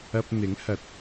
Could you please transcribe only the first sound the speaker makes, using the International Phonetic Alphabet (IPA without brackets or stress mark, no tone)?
ɐ